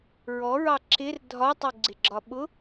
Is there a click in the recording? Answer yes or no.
yes